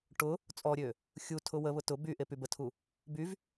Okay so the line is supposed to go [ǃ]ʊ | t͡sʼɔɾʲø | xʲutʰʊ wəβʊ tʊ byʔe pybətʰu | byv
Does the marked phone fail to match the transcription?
yes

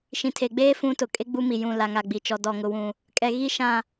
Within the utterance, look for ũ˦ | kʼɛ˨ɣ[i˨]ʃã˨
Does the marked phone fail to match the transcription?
yes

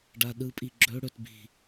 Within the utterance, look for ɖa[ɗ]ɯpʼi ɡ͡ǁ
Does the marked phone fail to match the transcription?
no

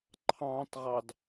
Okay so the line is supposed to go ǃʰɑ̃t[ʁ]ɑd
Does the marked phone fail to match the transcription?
no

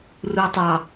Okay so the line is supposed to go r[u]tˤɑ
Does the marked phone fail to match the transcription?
no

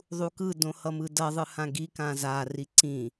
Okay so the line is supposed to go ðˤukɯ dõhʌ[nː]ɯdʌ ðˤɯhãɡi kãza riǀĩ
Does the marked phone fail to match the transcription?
yes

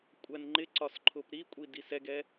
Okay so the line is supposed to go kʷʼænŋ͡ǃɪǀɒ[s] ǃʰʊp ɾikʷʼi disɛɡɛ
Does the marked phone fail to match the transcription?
no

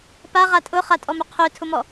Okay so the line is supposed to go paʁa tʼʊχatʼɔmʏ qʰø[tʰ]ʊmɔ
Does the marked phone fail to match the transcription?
no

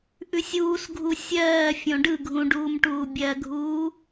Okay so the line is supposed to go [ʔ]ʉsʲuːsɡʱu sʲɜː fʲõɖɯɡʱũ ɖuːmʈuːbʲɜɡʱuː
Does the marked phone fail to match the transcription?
no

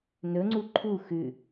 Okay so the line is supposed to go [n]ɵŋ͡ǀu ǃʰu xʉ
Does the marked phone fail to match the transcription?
no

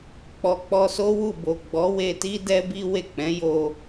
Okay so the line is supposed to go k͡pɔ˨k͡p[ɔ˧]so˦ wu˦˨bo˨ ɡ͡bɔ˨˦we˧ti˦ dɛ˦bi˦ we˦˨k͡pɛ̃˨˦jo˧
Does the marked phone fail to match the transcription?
no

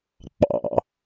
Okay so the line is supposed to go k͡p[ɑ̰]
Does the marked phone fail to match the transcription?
no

